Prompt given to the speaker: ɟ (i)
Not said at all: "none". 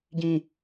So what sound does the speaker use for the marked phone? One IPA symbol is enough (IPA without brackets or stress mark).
ĩ